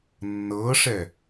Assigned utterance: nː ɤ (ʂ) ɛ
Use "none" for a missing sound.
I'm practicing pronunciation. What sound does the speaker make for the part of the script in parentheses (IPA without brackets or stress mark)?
ʂ